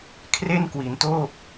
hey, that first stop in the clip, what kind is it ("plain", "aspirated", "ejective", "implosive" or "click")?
aspirated